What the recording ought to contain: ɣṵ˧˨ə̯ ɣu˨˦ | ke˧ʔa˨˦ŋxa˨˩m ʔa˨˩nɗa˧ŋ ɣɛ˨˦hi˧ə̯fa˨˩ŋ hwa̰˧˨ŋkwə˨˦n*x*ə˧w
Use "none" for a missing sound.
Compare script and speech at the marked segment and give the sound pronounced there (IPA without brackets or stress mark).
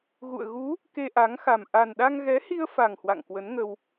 ŋ